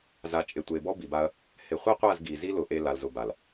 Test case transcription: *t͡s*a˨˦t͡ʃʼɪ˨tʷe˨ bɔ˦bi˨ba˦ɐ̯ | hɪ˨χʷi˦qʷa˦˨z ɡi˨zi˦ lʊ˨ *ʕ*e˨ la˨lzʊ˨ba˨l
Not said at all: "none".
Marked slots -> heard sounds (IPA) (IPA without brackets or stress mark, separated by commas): z, ʔ